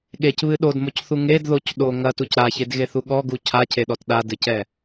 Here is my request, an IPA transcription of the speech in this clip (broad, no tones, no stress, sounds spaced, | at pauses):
ɠ e c β ɨ ɗ o d m o c θ u ŋ e d ð o c ɗ o ŋ ɐ t u c ɾ a ç e d ɣ e θ u ɠ ɔ ɡ u cʰ a cʰ e ɗ ɔ t ɗ a d ɨ c ɛ